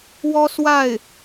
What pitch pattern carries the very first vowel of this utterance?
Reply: high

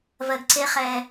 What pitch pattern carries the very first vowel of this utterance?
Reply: low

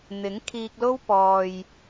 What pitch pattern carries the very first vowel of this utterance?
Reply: rising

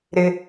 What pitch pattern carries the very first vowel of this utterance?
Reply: high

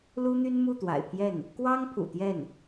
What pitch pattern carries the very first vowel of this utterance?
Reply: high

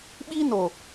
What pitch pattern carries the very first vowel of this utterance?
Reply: high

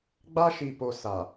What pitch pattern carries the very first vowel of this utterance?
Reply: high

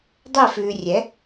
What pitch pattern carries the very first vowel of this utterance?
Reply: falling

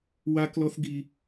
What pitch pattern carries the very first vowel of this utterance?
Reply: high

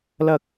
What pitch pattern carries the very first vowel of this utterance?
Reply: high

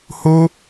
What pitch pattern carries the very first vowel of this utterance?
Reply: high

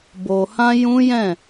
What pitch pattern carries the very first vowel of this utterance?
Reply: low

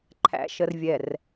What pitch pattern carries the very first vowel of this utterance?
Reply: low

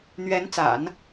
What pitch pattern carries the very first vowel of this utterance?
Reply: rising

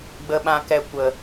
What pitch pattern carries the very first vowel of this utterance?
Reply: low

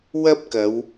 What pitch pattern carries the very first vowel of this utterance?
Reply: high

